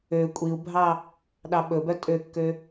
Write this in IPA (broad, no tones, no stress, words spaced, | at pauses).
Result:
ø kʷʼiu̯bʱɑ | ɗɑɓɵbœ tʼøkːø